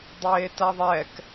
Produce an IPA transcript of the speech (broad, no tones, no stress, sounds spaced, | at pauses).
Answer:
dˤ eː t a ðˤ ɛ k